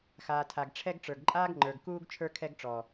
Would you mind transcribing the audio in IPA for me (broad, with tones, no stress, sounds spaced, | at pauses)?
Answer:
x aː˨ tʰ a˨ ɡ ʈ͡ʂʰ ɛ˦ ɡ ʈ͡ʂ ə˞˨ ɡ ǃʼ aː˦ ɡ ŋ͡ǃ ə˞˨ ɡ k uː˦ ɡ t͡ʃʰ ə˞˦ kʰ ɛ˦ ɡ ʈ͡ʂ ɔ˨